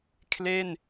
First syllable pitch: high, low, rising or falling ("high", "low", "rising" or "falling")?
falling